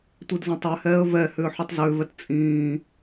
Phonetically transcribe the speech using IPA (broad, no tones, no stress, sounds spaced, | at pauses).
tʷ i d z ə̃ tˤ ɛ h ɛː ə̯ v ɛ h ʏː ħ ʉ tˤ z ʏː v ɛ t t͡sʼ ĩː